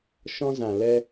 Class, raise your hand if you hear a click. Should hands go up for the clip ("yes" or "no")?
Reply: no